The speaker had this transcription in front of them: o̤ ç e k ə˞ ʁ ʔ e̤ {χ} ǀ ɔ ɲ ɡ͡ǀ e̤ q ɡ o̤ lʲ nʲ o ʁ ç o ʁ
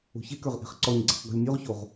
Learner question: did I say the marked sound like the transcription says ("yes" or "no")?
yes